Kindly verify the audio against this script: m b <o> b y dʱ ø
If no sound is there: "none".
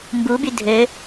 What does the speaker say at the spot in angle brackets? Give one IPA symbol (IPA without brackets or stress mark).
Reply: u